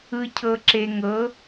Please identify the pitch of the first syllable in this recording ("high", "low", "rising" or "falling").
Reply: low